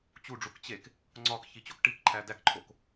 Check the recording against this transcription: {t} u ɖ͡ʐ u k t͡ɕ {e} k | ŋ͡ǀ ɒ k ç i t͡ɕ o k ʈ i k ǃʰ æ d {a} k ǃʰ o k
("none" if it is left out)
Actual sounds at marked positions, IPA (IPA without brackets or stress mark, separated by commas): t͡ɕ, e, æ